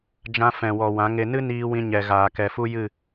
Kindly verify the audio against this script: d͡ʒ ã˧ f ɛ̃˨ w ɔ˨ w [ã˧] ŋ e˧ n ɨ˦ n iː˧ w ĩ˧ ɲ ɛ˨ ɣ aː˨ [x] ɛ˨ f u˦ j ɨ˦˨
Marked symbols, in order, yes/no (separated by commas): no, no